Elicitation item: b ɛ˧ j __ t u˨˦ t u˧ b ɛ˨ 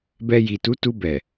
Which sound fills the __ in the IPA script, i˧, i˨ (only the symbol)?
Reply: i˨